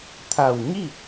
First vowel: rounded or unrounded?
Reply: unrounded